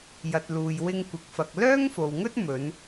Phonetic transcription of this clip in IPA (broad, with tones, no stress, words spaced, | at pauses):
jɐ˨t̚ luː˨jwɪ˧ŋ kʷɪ˨˥k̚fɐ˨k̚ lœː˥ŋfo˨wŋɵ˥t̚ mɵ˨˧n